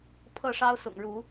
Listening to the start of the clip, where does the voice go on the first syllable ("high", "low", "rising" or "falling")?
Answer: falling